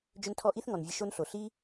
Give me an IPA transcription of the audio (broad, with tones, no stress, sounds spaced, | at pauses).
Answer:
d͡ʒ ʏ˧ n tʰ ɔ˧ ʔ i˦ θ ŋ ɔ˨ n vʲ ə˧ ʃ o˦ n ɬ o˨ ɬ i˦